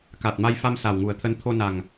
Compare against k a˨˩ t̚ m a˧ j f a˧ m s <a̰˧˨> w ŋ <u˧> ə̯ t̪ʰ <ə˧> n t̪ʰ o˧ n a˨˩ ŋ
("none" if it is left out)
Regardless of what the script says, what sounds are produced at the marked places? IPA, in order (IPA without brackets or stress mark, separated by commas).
a˨˩, u˨˩, ə˧